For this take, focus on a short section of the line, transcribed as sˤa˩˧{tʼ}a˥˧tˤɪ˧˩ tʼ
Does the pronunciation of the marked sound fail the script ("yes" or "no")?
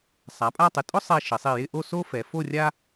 yes